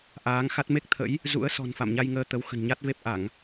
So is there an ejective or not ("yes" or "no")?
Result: no